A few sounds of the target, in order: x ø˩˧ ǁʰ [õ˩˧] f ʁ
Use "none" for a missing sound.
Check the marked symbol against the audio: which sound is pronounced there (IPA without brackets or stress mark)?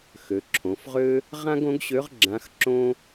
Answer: õ˩˧